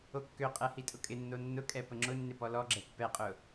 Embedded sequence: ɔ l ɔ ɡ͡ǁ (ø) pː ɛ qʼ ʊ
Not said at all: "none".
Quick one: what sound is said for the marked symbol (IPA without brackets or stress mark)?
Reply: ɛ